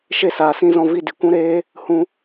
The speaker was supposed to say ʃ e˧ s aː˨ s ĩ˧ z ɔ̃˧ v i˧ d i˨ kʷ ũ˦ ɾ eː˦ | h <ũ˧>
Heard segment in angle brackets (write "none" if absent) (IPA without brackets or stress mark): ũ˧